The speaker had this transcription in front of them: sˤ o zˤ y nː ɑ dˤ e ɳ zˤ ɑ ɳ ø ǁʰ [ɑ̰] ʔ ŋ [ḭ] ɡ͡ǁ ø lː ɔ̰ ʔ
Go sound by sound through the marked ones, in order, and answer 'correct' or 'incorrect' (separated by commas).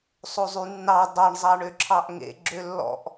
incorrect, incorrect